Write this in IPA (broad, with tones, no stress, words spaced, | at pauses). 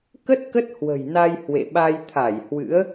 kə˦˥t̚ kə˦˥t̚hwə̤˨˩j na˧j hwḛ˧˨ɓa˧j t̪ʰa˧˩jhwɨ̰˧˥ə̯